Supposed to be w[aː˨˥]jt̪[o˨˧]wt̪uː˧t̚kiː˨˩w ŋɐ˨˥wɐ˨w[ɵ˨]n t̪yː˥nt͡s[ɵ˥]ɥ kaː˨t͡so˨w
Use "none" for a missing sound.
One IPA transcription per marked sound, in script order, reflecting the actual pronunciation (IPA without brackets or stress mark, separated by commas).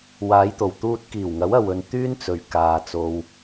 aː˨˧, o˨˩, ɵ˨, ɵ˨